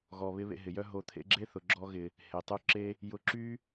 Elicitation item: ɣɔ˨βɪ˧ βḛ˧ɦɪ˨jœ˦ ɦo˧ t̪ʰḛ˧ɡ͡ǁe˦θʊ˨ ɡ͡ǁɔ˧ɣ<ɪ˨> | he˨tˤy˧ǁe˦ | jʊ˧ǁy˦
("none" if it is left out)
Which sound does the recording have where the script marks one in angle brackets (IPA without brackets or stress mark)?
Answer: ɪ˨